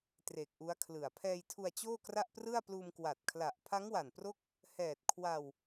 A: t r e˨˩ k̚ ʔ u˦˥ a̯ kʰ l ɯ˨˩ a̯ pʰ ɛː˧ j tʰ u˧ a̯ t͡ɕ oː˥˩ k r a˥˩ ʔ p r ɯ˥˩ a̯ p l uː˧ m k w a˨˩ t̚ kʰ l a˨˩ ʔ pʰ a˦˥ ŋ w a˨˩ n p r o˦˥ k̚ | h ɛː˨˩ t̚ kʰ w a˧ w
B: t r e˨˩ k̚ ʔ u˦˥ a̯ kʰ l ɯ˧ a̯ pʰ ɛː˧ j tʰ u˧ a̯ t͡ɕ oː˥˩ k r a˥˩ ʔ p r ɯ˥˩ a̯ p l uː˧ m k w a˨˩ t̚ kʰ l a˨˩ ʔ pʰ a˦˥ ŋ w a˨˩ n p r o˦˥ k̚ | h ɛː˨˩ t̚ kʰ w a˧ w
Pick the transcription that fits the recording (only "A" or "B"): A